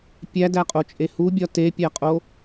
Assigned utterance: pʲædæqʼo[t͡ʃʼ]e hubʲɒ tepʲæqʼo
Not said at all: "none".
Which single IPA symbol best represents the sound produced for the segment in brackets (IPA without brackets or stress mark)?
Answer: t͡ʃʼ